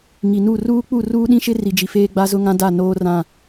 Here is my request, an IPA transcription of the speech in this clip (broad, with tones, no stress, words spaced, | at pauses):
ŋi˨nu˦˨ ruː˦ k͡pu˦˨ruː˦ɗĩ˦ʃɪ˦ ri˨d͡ʒi˨ feː˦ɡ͡ba˦zʊ˦ŋã˦ da˦˨noː˦rã˦˨